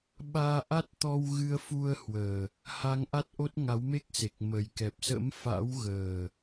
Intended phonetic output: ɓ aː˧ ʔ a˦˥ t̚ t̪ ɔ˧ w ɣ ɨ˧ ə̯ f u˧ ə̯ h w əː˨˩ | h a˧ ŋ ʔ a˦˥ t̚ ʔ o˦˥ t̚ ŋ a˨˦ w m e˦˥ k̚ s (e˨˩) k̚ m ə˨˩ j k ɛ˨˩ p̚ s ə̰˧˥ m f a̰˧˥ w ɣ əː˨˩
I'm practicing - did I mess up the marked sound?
no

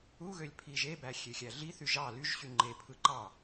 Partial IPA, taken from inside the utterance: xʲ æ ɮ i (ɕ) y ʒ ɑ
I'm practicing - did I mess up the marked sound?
yes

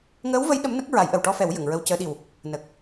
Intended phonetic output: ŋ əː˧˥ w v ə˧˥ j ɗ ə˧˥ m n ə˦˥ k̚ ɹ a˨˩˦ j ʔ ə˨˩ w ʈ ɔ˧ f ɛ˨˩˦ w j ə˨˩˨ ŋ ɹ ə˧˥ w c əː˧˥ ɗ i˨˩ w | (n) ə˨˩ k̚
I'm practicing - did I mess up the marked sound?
no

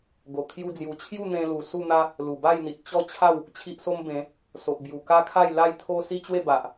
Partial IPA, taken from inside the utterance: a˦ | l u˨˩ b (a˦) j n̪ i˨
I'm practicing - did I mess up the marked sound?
yes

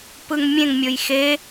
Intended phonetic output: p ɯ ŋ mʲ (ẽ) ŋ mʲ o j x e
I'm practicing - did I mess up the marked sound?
no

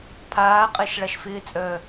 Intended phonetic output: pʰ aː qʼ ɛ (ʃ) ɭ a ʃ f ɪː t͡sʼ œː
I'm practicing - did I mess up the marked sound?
no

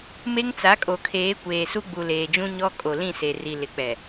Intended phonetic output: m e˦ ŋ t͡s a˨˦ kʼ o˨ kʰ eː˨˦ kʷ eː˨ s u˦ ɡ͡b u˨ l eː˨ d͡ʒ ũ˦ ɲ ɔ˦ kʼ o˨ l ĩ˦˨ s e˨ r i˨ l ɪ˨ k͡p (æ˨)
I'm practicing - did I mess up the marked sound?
yes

